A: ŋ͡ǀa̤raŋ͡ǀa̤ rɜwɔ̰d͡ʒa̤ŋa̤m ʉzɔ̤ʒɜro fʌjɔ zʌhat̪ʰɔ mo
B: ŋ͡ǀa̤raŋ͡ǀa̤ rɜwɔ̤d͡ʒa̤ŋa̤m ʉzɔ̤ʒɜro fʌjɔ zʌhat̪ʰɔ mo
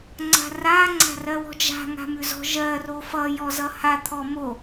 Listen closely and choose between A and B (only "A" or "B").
B